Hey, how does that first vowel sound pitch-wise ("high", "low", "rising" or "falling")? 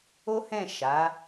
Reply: high